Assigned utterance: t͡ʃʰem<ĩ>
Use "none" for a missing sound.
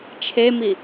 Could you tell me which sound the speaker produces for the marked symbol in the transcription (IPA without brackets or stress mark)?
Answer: i